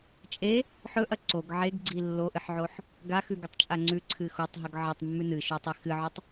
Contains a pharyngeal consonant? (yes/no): yes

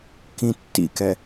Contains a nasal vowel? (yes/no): yes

